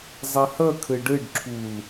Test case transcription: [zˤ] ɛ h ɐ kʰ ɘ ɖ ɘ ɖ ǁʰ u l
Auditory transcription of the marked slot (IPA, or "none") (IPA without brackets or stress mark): zˤ